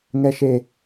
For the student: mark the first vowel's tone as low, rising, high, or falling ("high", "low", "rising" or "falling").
low